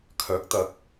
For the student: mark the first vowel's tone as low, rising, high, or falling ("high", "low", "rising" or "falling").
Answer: rising